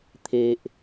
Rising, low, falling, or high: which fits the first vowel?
low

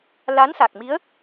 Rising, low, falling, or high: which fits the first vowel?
rising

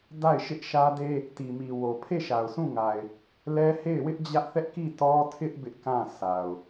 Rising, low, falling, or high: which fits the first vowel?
falling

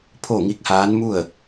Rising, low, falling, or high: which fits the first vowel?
falling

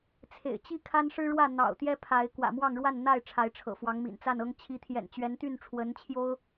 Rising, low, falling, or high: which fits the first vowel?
low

